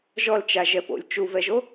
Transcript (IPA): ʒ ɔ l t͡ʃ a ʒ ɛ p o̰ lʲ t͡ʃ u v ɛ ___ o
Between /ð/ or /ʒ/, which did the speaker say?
ʒ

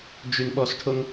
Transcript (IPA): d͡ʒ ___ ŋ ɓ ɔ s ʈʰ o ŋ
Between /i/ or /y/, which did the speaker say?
y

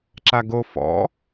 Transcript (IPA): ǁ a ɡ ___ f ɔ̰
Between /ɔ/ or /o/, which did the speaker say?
o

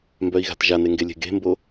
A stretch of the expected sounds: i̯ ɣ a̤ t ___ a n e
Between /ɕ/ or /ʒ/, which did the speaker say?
ʒ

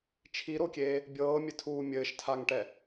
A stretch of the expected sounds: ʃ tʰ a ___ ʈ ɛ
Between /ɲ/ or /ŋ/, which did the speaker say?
ŋ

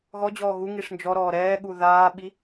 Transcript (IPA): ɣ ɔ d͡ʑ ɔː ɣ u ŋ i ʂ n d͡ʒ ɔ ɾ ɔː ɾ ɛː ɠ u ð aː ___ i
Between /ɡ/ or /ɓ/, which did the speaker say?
ɓ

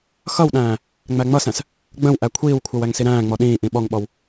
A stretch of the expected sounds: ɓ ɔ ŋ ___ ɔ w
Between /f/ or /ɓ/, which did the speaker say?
ɓ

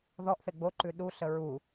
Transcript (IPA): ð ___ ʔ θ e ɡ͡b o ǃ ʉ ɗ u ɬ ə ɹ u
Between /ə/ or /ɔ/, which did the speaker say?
ɔ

